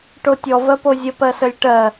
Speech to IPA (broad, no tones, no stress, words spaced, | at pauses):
ʈotʲɔ vɜpozʲə pɜsəlʲʈɜ